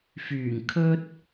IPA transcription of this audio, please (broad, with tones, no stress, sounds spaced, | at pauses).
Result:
f yː˨˩ ŋ kʰ ɵ˧ t̚